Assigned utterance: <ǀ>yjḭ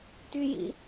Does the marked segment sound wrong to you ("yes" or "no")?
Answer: yes